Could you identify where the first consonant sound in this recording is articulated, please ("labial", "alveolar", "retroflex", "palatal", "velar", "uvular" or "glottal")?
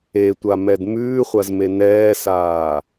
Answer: alveolar